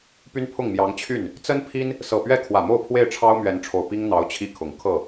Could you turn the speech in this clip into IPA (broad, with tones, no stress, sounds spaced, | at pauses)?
p y˥ n pʰ ʊ˥˩ ŋ m j ɑ˧˥ ŋ t͡ɕʰ y˥˩ n | t͡s ə˥ n pʰ i˥ n | s ɤ˨˩ p ɥ ɛ˥˩ kʰ w ä˨˩ m o˥˧ ʊ̯ pʰ w e˥˩ ɪ̯ ʈ͡ʂʰ ɑ˥ ʊ̯ m ɥ ɛ˧˥ n ʈ͡ʂʰ o˨˩ ʊ̯ p i˥ ŋ n̪ ɑ˧˥ ʊ̯ t͡ɕʰ i˥˩ kʰ ʊ˨˩ ŋ kʰ ɤ˥˩